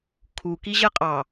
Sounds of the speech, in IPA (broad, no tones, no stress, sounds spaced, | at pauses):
kʰ u k i ʑ ɜ qʼ ɑ